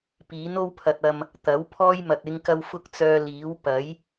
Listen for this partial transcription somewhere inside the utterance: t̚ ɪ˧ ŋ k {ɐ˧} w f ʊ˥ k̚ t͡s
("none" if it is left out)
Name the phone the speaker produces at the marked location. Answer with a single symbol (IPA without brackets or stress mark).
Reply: ɐ˧